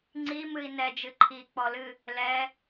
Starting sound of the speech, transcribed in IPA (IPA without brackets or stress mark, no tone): ŋ͡ǀ